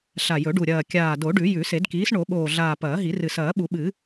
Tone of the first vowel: low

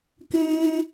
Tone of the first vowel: high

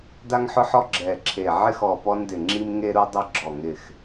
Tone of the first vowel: high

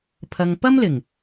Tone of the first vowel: low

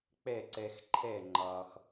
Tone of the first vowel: falling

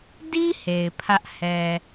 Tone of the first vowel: high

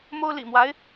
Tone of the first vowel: high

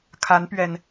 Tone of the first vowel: rising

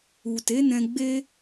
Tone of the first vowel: low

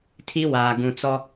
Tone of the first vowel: high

